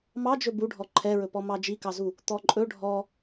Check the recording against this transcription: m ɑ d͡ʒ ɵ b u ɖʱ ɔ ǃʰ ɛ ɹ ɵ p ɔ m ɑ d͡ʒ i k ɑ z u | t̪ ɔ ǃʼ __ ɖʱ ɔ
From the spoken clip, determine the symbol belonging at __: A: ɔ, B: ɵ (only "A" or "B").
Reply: B